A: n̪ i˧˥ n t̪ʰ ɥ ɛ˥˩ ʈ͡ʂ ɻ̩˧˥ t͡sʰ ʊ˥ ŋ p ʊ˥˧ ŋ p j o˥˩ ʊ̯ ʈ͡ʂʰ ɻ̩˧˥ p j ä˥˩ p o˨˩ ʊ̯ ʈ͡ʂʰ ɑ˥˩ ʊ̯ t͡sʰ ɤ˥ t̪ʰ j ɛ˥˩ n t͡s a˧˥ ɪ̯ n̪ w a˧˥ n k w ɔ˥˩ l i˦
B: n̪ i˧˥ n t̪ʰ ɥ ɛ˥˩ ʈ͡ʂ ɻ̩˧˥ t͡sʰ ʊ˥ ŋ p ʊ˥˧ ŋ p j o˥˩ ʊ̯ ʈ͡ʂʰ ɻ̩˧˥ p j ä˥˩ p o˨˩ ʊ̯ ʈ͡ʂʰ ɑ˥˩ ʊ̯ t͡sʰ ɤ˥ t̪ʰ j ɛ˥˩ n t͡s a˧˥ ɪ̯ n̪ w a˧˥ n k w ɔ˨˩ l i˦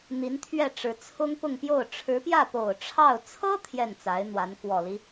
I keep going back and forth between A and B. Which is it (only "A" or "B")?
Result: B